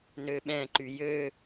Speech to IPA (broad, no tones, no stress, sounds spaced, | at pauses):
n ø ɓ ɛ̃ ǃ y j ø